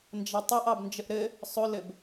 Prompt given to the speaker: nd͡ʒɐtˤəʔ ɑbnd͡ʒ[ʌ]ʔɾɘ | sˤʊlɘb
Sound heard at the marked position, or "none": ə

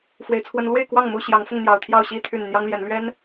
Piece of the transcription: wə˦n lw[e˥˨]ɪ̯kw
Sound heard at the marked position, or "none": e˥˨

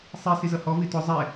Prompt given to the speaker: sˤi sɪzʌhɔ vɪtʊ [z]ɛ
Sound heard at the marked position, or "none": zˤ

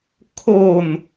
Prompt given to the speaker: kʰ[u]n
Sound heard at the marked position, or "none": o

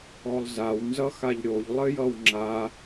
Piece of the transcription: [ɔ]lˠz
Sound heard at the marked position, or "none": ɔ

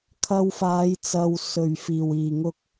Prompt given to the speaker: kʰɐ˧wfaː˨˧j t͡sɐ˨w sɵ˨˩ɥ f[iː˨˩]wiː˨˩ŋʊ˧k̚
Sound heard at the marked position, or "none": iː˨˩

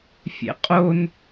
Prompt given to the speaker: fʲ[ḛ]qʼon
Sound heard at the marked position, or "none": ḛ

